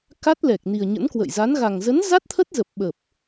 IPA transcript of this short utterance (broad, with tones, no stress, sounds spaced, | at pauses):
k a˦˥ t̚ l ɛ˨˩ k̚ n i˨˩ ə̯ ɲ ə̰˧˥ n k w ə̰˧˨ j z a˨˦ n ɣ a˨˩ ŋ z ə˨˦ n z a˦˥ t̚ t̪ʰ ə˦˥ t̚ z ə˨˩ p̚ ɓ ə˨˩ p̚